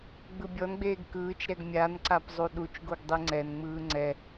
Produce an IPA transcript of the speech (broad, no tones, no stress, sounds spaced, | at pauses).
ɡ͡b ɯ bʲ ɔ n ɡ͡b eː ɡ k ɯː t͡ʃ ɾ ɛ ɡ mʲ a n ǀ a p zˤ u ɗ u t͡ʃ ɡ o ɡ dˤ i ŋ͡ǀ ɛ n ŋ͡m ɯː ŋ͡ǀ ɛ